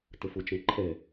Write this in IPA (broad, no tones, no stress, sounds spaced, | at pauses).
t ə f ʊ t͡ʃ ɛ̃ ǃʰ ɛ